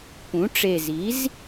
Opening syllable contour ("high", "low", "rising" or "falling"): rising